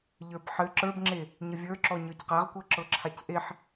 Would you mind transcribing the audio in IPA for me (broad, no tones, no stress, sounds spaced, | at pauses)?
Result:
ʎ ə˞ b ħ ɘ ǁ ə˞ b ŋ͡ǁ e | ɲ ə vʲ ə˞ ǁ ɔ ɲ ə˞ c q a ʁ kʷ ɤ ǁ ɤ ǁʰ a c ʔ e ħ